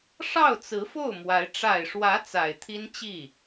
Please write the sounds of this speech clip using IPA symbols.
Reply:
ʂ ɑ˥˩ ʊ̯ t͡s ɹ̩˧˥ f o˥˩ ʊ̯ m w a˧˥ ɪ̯ ʈ͡ʂ a˨˩ ɪ̯ ʂ w ä˧˥ t͡s a˨˩ ɪ̯ t̪ʰ i˥ n t͡ɕ i˥˩

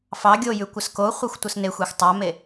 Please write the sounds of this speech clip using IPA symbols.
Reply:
f ɑ ɡʲ o j ʉ kʷ ə s k o χʷ ɛ xʷ tʷ ə s n e xʷ e xʷ tˤ a m e

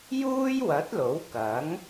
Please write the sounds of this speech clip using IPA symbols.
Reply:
j uː˥ j w ɐ˨˥ t̚ l o˨˥ w k ɐ˨˥ ŋ

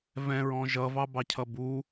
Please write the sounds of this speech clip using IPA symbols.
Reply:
v ɛ̃ ɹ ɔ̃ ʒ ʌ v ɑ b ɑ cʰ ʌ b u

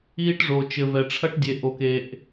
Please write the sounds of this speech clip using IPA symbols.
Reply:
iː˦ ʈ ʐ o˨ t͡ʃ ɘ˨ v ɛ˨ ʈ͡ʂʰ ɐ˦ ʈ dʲ e˨ ʔ o˨ k e˨ ʔ

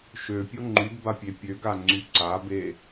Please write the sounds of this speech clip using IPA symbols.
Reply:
ʃ ø pʲ o ŋ͡ǃ y d b a pʲ e pʲ ø ɡ a ŋ͡ǀ y ǀ a b e

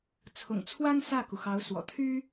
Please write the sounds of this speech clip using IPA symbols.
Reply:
t͡sʰ ʊ̰˨˩ ŋ t͡sʰ w a˥ n s ä˥˩ k u˩ x ɑ˧˥ ʊ̯ s w ɔ̰˨˩ t̪ʰ y˥

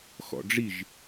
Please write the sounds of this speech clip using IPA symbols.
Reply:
x ɔ̰ ɖ͡ʐ i ʒ

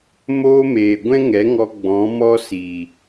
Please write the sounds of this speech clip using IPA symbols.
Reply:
m oː˦ m eː˨ ɡʷ ɛ̃˦ ŋ ɛ˨˦ ŋ ɔ˧ ɡ͡b ɔ̃˨˦ m ɔ˦ s i˨

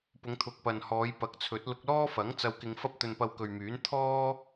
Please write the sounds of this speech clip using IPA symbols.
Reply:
p ʊ˨˧ ŋ t̪ʰ ʊ˨ k̚ p ɐ˨ n h ɔː˨˧ j p ɐ˨˥ k̚ t͡sʰ ɵ˨˥ t̚ l ʊ˧ k̚ l ɔː˥ f ɐ˨˥ ŋ t͡s ɐ˧ w k ɪ˧ ŋ f ɐ˥ p̚ t̪ ɵ˧ n p ɐ˧ w k ɵ˨ ɥ m yː˨˥ n t̪ʰ ɔː˥

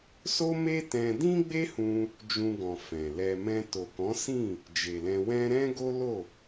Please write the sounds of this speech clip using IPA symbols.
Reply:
s o˦ m e˦ t ɛ̃˧ d ĩ˦ ɡ͡b e˦ h ũ˧ | d͡ʒ ũ˧ ɡ ɔ̃˨ f ɛ̃˨ l ɛ˧ m ɛ̃˧ t o˨ k ɔ̃˨˦ s ĩ˦˨ | d͡ʒ e˨ l ɛ̃˧ w ɛ̃˧ ɾ ɛ̃˦ ɡ o˦ l o˦˨

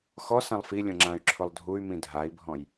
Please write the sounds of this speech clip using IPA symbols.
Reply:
x ɔ s ã lˠ f i lʲ õ ŋ͡ǁ ã y̯ ǁʰ ʊ lˠ dʱ u y̯ m ĩ dʱ a i̯ bʱ ɔ̃ j

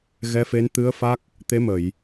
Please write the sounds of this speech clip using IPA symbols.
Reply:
ɣ ɛ˧˥ f e˧˥ n t̪ ɨ˧˥ ə̯ f a˦˥ k̚ | t̪ e˧˥ m ə˨˩˨ j

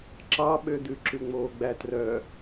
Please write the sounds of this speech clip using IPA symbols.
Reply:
ǁ ɑ ɓ ø d̪ ʉ ǁ ʉ ŋ͡m oː ɡ͡b æ t r œ

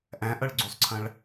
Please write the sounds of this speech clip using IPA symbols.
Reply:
ʔ æ̃ ʔ ʌ ɭ ɡ͡ǀ u sˤ ǀʰ ɐ̃ ɭ

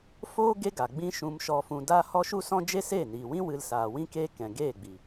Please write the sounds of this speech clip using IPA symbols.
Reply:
f oː˦ ɡ e˦ ɡ a˨ ɡ͡b ĩ˦ ʃ ũ˧ m ʃ ɔ˧ f ũ˧ d a˦ h ɔ˦ ʃ u˦ s ɔ̃˦ d͡ʒ e˦ s eː˦˨ n iː˨ w ĩ˦ w ɨ˧ l s aː˨ w ĩ˦ k eː˦ k ɛ̃˨ ɡ eː˦˨ ɡ͡b i˨

